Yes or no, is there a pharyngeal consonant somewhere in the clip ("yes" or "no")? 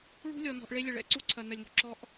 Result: no